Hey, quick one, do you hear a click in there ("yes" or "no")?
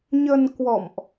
no